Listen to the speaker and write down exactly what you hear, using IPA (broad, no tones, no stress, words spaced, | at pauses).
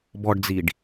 bɔɖd͡ziɖ